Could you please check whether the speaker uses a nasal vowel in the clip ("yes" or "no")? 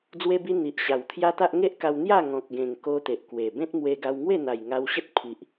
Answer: yes